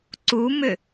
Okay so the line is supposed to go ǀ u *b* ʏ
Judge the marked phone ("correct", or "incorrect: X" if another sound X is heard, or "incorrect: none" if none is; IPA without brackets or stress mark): incorrect: m